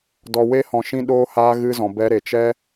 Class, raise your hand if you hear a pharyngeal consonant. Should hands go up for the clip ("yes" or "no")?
no